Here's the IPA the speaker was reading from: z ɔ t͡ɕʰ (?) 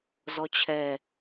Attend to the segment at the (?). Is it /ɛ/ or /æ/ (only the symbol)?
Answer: ɛ